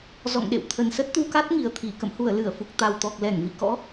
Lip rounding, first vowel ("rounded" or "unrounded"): rounded